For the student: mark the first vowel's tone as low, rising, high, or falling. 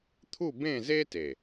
falling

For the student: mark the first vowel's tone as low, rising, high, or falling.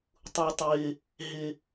low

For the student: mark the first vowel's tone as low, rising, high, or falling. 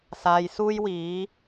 low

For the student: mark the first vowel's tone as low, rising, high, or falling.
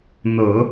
low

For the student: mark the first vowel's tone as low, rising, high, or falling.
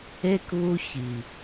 high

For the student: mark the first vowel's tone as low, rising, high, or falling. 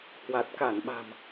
low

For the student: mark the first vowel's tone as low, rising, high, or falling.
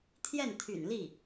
falling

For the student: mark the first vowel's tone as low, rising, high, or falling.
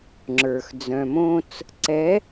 low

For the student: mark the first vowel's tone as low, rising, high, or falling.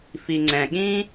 low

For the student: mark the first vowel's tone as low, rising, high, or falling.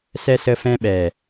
high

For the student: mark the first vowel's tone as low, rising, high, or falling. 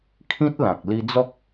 high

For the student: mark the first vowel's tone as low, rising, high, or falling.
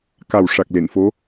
low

